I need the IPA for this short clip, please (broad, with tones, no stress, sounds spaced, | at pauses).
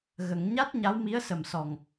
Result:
ɣ ə˨˩˨ ŋ ɲ a˦˥ t̚ ɲ a˧˥ w m i˧˥ ə̯ s ə˨˩ m s ɔ˨˩ ŋ